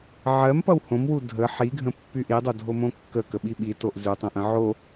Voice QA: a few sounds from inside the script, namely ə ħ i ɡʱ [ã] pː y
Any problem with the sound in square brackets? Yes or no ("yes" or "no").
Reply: yes